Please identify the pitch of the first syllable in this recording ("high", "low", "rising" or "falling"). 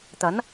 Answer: rising